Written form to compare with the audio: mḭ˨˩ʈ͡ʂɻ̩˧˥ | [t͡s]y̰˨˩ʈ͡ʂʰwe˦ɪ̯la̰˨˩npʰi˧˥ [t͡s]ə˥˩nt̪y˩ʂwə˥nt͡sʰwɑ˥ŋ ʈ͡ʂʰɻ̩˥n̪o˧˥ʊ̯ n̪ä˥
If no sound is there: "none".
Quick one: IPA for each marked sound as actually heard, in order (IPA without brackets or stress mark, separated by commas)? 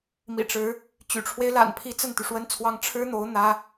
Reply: t͡ɕ, t͡s